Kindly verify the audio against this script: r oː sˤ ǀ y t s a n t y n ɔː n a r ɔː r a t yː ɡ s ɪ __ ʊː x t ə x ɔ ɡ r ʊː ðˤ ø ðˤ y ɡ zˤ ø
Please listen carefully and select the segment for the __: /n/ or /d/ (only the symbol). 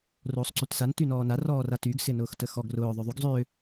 n